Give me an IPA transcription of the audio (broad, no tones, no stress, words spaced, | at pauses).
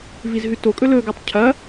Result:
vizɦʉtokʼɵ lɵɡutˤ cʰɐ